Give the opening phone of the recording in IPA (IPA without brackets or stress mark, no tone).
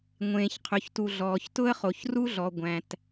ŋʷ